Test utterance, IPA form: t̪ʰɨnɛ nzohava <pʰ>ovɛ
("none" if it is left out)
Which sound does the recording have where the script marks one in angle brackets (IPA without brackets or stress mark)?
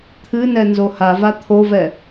t̪ʰ